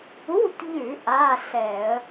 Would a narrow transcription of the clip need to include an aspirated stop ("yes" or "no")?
no